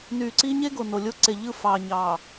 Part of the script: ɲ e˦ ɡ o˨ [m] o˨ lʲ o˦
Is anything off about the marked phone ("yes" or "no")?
yes